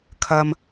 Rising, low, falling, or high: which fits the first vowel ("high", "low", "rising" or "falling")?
low